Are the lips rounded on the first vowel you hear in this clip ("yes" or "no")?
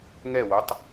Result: no